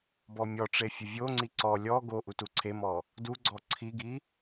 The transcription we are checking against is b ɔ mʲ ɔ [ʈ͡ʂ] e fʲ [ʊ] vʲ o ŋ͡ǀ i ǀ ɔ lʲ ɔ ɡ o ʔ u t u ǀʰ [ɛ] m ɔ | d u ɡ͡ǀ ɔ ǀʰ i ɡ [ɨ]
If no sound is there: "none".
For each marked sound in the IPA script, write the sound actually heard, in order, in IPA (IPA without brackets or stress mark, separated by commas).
ʈ͡ʂ, ʊ, e, i